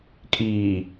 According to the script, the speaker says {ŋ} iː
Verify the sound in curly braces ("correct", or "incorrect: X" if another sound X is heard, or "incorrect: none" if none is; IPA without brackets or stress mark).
incorrect: kʼ